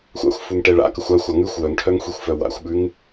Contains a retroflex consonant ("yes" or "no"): yes